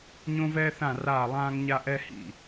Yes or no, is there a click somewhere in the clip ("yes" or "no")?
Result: no